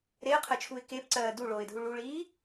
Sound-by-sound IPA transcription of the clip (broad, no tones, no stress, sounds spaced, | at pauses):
ɾ e ə̯ qʰ ɜ t͡ʃʰ u ɪ̯ k e p ǀ ɜː d u ɭ oː ɪ̯ dʱ u ɭ u ɭ iː